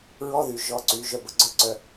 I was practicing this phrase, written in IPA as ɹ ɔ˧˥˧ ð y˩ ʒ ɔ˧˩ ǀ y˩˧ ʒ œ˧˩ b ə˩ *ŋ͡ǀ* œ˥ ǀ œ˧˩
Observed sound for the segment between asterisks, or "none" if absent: ɡ͡ǀ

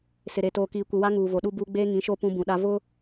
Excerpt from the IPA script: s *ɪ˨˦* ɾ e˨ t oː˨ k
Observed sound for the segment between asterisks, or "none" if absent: ɪ˨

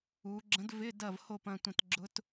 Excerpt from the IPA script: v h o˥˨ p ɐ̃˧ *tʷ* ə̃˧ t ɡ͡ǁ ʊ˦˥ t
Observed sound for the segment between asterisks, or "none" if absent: tʷ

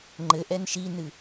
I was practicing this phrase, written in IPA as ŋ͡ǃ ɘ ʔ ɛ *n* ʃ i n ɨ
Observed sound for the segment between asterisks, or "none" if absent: n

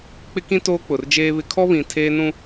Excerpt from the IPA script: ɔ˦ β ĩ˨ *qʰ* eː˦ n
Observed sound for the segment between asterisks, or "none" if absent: tʰ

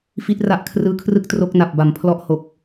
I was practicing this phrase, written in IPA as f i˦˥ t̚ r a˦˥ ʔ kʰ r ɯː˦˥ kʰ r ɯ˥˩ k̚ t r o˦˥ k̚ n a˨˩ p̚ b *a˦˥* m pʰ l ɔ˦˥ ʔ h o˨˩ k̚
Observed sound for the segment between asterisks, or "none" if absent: a˩˦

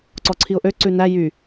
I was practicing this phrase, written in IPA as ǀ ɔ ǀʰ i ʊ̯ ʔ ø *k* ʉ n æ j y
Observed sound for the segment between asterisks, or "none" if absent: ǀ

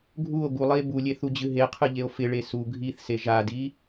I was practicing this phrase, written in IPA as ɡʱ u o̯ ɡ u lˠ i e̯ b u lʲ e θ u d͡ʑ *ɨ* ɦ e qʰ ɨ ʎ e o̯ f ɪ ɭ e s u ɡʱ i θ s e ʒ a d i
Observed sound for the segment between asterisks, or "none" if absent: ɨ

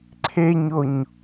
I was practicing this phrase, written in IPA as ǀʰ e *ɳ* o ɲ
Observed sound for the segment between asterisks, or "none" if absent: ɲ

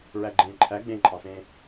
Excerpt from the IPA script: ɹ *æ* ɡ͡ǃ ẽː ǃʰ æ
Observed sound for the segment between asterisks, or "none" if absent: æ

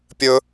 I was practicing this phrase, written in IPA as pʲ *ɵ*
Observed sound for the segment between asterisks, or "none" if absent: ɵ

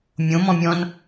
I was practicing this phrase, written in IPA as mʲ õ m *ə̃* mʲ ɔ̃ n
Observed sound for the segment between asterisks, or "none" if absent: ɔ̃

